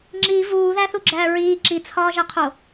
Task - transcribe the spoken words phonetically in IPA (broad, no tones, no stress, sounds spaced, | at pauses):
ŋ͡ǁ i v uː ð æ θ u ɡ͡ǁ æː ɹ iː ǁ i t͡sʰ ɒː ʒ æ qʰ o